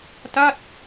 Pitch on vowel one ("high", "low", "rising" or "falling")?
falling